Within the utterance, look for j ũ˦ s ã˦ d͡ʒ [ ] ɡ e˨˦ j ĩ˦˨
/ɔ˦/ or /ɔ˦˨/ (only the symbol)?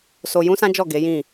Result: ɔ˦˨